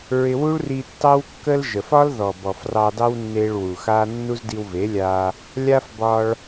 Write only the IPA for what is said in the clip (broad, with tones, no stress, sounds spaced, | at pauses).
ɹ ɪ˧ w u˦ ɭ r i˧ tː ɑ˦ w kː ə˦ l ʒ ə˨ f ɒ˦ l ð ɔ˨ b ɔ˨ f r ɑ˧ d ɑ˦ w nː e˧ ɭ w u˨ x a˦ nː u˦ z d i˧ w v e˨˦ lʲ a˧ | lʲ a˦ f b ɒ˧ ɭ